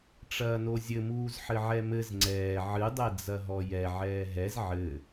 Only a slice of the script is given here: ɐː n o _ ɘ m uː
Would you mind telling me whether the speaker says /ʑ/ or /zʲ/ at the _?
zʲ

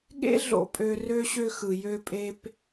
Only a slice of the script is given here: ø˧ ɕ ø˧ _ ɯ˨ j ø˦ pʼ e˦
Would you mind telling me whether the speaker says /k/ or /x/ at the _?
x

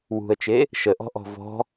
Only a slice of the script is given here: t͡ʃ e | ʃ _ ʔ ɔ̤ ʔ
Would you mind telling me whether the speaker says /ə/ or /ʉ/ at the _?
ə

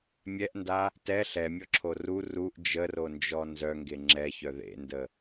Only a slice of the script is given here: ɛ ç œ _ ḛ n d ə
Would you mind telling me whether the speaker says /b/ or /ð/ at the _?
ð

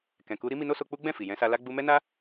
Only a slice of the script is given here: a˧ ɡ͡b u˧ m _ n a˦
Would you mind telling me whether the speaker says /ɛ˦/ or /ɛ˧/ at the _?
ɛ˦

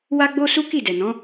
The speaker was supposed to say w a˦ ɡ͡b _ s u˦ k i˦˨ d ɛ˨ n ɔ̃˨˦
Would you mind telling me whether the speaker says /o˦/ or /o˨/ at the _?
o˦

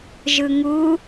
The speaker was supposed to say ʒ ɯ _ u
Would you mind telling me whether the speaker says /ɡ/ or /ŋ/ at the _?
ŋ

